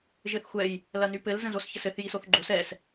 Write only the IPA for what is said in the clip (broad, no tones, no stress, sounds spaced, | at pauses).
ʒ ɘ θ xʷ ɛ j | l ɐ n y p ɘ l z ə̃ z o s ç ə s ɘ θ j i s o θ ɡ͡ǃ o s ɛ s